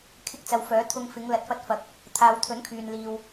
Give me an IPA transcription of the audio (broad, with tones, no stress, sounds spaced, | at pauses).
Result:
kʰ ɪ˧ k̚ t͡s ɐ˨ w f œː˨˥ t̪ʰ ʊ˧ ŋ f ɪ˨˧ ŋ l ɐ˨ t̚ f ɐ˧ t̚ f ɐ˨ k̚ | t̪ʰ aː˨ w t̪ʰ ɵ˨˥ n kʰ yː˨ n l iː˨ w